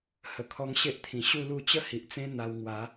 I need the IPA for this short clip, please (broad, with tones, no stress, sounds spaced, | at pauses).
h ə˨˩ kʰ ɔ˧ ŋ ɕ e˦ ʔ t̪ʰ ĩ˨˩ ɕ u˥˧ l u˥˧ t͡ɕ ə˥˧ h i˨ ʔ t͡s ẽ˦ n̪ a˧ w ŋ w a˨˦